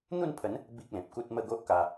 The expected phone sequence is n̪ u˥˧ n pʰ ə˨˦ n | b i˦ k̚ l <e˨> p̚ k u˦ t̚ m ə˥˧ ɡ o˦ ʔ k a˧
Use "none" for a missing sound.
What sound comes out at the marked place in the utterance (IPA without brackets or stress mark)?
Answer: ẽ˨